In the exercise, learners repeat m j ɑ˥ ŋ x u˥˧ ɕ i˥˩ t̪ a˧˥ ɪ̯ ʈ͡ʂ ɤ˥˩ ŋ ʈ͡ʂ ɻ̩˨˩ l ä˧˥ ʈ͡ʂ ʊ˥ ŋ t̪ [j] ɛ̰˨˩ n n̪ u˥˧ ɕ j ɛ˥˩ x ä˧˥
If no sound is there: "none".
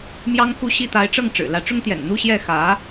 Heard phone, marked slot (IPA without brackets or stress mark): j